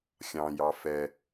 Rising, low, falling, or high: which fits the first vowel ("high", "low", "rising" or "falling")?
high